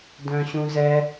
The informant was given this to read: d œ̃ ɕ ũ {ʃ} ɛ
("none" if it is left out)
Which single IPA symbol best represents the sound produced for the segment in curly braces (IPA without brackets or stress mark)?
z